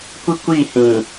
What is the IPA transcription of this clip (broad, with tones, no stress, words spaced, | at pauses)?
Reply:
kʷi˦kʷiː˦˨hĩ˨